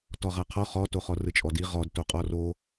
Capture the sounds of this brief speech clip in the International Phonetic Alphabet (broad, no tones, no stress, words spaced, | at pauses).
tɔʁaqʰɔ χɔtoχɔ rɯt͡ʃʼɔdi ʁɔd toqʼɔro